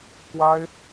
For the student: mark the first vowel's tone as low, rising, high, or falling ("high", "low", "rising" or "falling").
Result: high